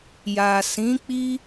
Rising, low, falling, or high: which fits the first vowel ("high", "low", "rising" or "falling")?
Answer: low